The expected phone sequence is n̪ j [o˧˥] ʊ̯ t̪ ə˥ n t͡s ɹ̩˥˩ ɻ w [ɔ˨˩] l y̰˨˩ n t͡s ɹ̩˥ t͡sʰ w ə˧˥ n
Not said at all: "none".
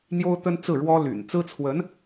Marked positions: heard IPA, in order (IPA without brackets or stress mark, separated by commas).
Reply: o˥, ɔ˥